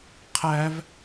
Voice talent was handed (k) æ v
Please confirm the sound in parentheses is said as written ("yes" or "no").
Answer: no